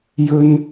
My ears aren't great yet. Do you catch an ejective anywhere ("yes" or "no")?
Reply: no